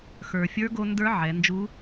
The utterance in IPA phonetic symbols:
x ə˞˩ fʲ ə˞˧˥ ɡ o˧ n d ə˞˧˥ ʕ ɛ˩˧ n d͡ʒ u˧˥

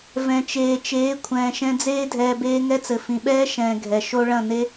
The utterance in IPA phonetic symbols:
v ɛ̃˨ t͡ʃ eː˨ t͡ʃ eː˨˦ kʷʰ ɛ̃ː˨ ʃ ɛ̃˧ d͡z eː˦ dʱ ɛː˧ b eː˦ ŋ ɛ˦ t͡s ɘ˨ f ĩ˨ ɓ ɛː˦ ʃ ɛ̃ː˨ ɡʱ ɛ˨ ʃ o˦ ɭ ɐ̃˦˨ n e˦

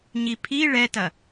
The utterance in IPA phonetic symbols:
ɲ i pʰ i ɭ ɛ t ɐ

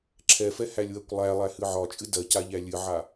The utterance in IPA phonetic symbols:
ǁʰ ɛ f ɛ h æ lʲ w ɜ kʷ lˠ æ lˠ æ h ɨ ʕ ɒ t͡ʃʼ ɨ d ɜ c a ʎ æ lʲ ɨ ʕ a

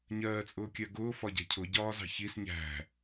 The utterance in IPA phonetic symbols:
ɲ ɜː t͡sʼ ʊː kʲ ɜ ɡ ʊː f ɒ ɟ ɛ̤ cʰ ʊ ɟ ɒː z ɑ̤ ç i s ɲ æ̤

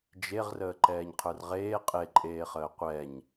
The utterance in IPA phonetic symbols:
d͡ʒ e ʁ r əː ǃ ɛː ɲ qʰ ə˞ r ʁ eː qʼ e ǃʼ eː χ əː qʷ ɛ ɲ

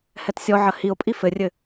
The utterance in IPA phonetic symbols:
h ɛ t sʲ ɔ ʕ ɐ h i o̯ pʼ i f ɘ rʲ ɘ

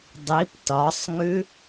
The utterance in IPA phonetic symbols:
dˤ i p t ɒ sˤ ŋ ʉ

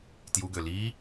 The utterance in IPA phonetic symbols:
t j u ɡ ø l iː

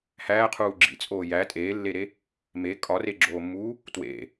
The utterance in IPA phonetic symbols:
h æː qʰ uː ɡ͡ǁ ḭ t͡sʼ oː j æ tʼ eː lː e ɾ e | m e kʼ ɒ r e ɡ͡ǁ oː mː uː | t w ḛ

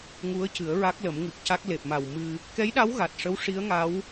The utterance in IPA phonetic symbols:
ŋ u˧˥ ə̯ c ɨ˨˩˦ ə̯ ɹ a˦˥ k̚ l ə˨˩˦ m ŋ ɨ˨˩ k̚ c a˦˥ k̚ l e˨˩ p̚ m a˨˩ w m ɨ˧ | k ɛ˧˥ j ɗ a˧˥ w ɣ a˨˩ t̚ ʂ ə˧˥ w ʂ i˧˥ ə̯ ŋ a˧˥ w

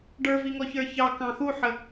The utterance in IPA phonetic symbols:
ɖ ə˞ v i ŋ ɔ ç ə˞ ç ɑ k ɑ̃ x u ħ ə

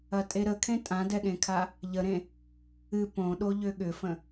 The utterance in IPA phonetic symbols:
ɐ tʼ e ɾ ə kʰ ẽ tʼ ã d ɛ ɠ ẽ kʰ a | ʎ ə ɾ ẽ | ɨ p õ ɗ o ʎ ʏ ɠ ʏ f ə̃

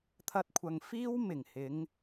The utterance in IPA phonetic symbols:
t̪ʰ ɐ˥ t̚ kʷʰ ɐ˧ ŋ f iː˥ w m ɪ˨˩ ŋ h ɪ˨˧ ŋ

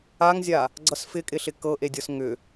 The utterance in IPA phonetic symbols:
a ŋ zʲ a | ɡ͡ǀ ʌ s f ɪ kʼ ɪ ɬ ɪ k ɤ ʔ e dʲ ɤ s ŋ ʏ

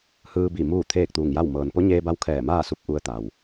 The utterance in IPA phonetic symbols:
h ɯː˧ b i˧˩ m uː˥˨ t̪ʰ eː˥˨ k̚ t̪ uː˧˩ ŋ j a˥˨ w m ɤː˩ n p o˧˥ ɲ eː˧ b a˧ w kʰ ɛː˧˩ m aː˥˨ s u˧ p̚ ʔ u˧ ə̯ t̪ a˩ w

